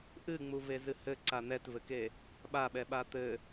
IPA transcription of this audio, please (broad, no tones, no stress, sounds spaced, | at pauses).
ʔ ɨ ŋ͡m u v e z ɨ h ɘ ǀ a n̪ ɛ t v ɘ k e | ɓ a ɓ ɛ ɓ a t̪ ɘ